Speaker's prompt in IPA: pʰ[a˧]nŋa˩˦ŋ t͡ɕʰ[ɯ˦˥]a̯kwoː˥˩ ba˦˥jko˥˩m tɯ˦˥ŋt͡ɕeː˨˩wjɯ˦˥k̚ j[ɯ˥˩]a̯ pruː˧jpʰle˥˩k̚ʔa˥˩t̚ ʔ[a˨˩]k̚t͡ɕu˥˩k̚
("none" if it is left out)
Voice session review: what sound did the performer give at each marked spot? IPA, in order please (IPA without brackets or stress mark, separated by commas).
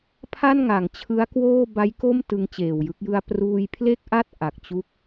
a˥˩, ɯ˦˥, ɯ˧, a˨˩